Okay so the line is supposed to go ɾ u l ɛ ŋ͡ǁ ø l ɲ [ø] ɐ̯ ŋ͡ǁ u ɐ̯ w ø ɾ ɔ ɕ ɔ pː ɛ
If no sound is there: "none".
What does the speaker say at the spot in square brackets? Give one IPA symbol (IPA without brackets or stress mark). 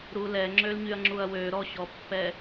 y